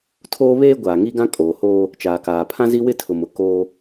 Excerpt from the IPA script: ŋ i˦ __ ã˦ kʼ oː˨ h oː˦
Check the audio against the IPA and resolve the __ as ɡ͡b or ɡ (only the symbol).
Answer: ɡ